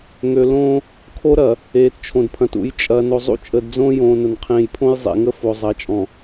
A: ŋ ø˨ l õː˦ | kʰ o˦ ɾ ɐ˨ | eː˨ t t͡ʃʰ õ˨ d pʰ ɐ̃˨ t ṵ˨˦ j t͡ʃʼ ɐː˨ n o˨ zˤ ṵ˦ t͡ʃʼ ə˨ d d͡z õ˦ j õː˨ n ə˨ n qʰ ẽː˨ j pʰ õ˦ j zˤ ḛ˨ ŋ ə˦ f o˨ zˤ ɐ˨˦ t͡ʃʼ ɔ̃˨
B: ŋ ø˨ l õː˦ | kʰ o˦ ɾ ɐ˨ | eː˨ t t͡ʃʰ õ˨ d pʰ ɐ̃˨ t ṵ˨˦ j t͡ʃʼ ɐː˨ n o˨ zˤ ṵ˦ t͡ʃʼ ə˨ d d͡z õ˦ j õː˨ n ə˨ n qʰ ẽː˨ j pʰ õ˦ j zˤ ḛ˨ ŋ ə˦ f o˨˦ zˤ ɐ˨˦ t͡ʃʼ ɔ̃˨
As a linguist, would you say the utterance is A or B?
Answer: A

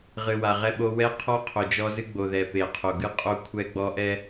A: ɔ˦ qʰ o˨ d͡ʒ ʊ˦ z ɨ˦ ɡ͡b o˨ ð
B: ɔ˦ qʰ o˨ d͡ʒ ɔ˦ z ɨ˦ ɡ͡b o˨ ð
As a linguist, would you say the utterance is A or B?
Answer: B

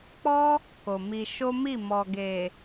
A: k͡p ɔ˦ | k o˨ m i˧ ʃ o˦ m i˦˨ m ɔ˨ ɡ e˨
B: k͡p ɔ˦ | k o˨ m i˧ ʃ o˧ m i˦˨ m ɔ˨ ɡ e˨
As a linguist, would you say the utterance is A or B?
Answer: A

